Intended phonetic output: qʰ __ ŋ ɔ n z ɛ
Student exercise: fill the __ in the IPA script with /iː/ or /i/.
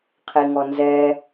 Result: i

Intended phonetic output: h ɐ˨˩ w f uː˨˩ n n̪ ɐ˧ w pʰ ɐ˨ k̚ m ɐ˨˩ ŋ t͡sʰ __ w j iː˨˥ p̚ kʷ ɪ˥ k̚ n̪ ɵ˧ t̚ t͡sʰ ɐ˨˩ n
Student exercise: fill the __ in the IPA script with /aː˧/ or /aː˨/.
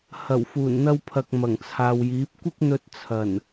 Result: aː˨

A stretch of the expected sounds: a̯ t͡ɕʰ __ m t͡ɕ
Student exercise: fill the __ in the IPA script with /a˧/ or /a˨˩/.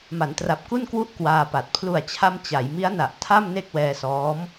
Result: a˧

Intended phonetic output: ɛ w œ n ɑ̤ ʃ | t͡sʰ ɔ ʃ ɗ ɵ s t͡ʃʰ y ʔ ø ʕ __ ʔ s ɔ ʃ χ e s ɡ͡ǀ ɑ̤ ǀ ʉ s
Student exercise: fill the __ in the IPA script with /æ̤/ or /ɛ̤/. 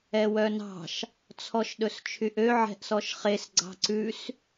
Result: ɛ̤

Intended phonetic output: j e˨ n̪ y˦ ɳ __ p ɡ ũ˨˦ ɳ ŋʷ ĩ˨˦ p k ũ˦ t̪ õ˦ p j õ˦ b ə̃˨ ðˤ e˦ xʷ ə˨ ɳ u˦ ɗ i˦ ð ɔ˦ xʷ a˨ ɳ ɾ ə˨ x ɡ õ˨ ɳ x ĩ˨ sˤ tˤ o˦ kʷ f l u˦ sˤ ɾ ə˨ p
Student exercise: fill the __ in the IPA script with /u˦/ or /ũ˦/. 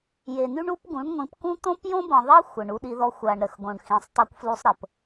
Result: u˦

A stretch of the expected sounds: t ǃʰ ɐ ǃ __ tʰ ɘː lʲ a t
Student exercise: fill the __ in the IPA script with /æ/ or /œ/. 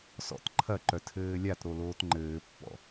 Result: œ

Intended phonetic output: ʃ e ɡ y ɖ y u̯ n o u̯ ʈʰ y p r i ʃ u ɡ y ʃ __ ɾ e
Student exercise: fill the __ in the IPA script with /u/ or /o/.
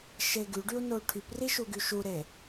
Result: u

